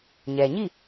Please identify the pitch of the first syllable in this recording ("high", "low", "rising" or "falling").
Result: low